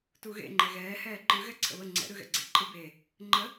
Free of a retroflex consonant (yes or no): yes